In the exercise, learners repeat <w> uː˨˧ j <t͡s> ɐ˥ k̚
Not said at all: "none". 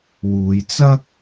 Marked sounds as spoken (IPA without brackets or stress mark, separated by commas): w, t͡s